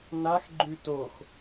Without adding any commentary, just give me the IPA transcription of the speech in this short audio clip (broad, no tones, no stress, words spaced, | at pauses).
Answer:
nax ɡ͡ǃʉtox